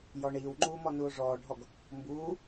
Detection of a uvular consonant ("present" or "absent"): absent